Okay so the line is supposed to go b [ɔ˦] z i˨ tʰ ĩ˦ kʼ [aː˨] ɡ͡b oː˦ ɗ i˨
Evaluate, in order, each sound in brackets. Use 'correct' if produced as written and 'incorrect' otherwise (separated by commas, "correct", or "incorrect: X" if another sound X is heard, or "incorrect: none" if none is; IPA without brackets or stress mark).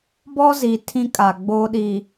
correct, incorrect: a˨